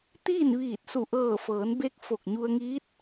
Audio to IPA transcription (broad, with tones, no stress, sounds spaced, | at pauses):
t̪ iː˥˨ n ʋ iː˧˩ t̚ s u˧˩ ʔ ɤː˧˩ f ɤː˩˧ n b e˧˥ k̚ f o˧˩ k̚ ɲ u˧ ə̯ ŋ iː˧˥ t̚